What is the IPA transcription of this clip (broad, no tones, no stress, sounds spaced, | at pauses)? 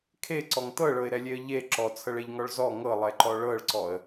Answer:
kʰ e ǀ ɔ ŋ t̪ ɤ ɭ ɤ ɪ̯ ɾ ɛ lʲ e ə̯ ʎ e ǁ ɔ t͡sʰ ɤ ɭ e ʎ ŋ ɔ ɭ z ɔ ŋ ɤ lˠ ɛ ǃ ɔ ɭ ɤ ɭ ǀ ɔ ə̯